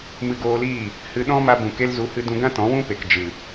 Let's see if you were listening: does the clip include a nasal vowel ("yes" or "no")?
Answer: yes